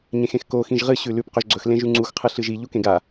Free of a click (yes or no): no